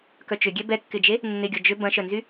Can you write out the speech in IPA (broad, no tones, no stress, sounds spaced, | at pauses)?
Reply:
k œ t͡ʃ ʏ ɡʲ ɛ b ɛ kː ɪ d͡ʒ e | nː ɪ ɡʲ ɔ d͡ʒ ʏ b ɐ̃ ʃ œ n z y